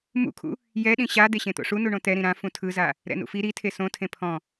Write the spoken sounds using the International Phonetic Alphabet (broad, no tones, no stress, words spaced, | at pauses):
mṵkʰṵ | jɛɗĩ ɕa d̪eɕẽt̪o̰ʂu nuɳõt̪ɛɾĩ ɾã fũtʰɯza | ɾɛ̰nṵfi ɾitʰe sõtʰẽ pʰɔ̃